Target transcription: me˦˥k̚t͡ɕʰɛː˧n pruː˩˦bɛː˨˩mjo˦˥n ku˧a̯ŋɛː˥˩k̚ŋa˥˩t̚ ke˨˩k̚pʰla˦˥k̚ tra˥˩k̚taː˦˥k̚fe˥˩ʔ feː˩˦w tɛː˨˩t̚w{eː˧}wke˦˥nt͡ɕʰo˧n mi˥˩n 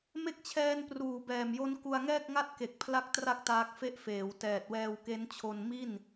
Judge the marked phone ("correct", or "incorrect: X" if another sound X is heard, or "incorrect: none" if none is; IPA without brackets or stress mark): incorrect: ɛː˧